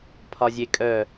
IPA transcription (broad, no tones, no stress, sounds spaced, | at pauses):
pʰ ɒ zʲ e kʼ œ